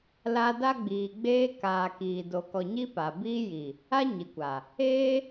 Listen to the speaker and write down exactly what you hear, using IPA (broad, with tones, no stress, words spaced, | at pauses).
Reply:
la˧da˦ɡ͡biː˨ ɡ͡beː˧kaː˨ kiː˨ do˨kɔ˨ ɲi˦pa˨ biː˦ ji˨ | a˦ɲi˨kʷa˨ | eː˦